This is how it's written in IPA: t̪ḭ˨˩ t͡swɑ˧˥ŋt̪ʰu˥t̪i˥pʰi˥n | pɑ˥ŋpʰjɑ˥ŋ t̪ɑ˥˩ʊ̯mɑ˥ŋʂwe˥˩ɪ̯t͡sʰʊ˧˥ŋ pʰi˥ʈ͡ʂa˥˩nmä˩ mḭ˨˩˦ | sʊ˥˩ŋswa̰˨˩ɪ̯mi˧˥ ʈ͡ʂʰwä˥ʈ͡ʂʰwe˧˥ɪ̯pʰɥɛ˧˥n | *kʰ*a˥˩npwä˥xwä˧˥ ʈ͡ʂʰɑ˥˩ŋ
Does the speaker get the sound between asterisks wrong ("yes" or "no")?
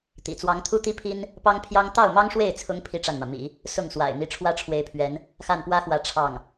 yes